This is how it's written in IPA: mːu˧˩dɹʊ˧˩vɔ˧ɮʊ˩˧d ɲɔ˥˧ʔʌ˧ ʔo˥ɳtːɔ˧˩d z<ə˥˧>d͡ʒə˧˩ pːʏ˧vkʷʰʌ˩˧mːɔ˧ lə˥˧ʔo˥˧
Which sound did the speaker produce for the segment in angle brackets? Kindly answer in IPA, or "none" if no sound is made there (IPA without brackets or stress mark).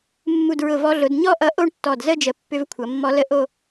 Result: ə˥˧